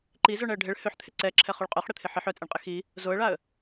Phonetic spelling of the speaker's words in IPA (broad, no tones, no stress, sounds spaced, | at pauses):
ǃ i z œ ɳ ɛ ə̯ ɖʱ e ɭ h ø ħ t̪ʰ ɪ ǀ ɛ ǁʰ ɛ χ o ɭ qʼ œ χ ɽ ɪ t̪ʰ ɪ ħ ɪ ħ œ t͡sʼ e ɳ qʼ ɪ x i | z o ə̯ ɭ a ə̯